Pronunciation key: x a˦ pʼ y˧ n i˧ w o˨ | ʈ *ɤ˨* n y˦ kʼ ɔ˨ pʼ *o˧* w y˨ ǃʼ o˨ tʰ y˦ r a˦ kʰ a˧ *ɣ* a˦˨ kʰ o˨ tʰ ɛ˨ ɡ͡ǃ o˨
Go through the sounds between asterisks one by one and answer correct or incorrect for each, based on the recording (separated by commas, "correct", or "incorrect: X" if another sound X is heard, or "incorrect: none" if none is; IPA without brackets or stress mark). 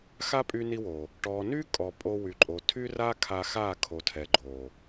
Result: incorrect: ɔ˨, correct, incorrect: x